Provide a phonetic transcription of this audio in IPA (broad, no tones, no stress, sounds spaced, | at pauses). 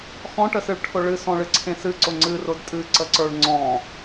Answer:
x ɔ̃ ʈ ə s ɨ ɭ ʈʰ ʊ ɭ ɨ s ɔ̃ ɭ ɨ ǀʰ ẽ s ɨ ǀ ʊ ŋ͡ǀ ɨ r ʊ d tʼ ɨ ǀ ə ǀ ə˞ ɭ ŋ͡ǀ ɔ̃